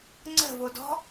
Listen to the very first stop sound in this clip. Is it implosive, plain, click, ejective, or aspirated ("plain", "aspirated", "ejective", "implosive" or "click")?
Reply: click